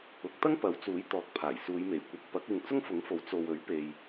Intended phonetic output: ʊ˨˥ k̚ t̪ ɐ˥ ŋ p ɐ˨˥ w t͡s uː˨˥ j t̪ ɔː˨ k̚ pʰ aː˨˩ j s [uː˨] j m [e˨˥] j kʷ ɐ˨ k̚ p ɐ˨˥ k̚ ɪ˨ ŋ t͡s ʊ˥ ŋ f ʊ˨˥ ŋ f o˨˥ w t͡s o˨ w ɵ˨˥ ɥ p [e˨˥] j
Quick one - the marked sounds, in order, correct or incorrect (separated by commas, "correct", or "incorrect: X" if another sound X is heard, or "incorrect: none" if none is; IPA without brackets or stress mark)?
incorrect: uː˨˧, incorrect: e˨˩, incorrect: e˨